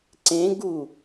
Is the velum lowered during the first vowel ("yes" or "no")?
yes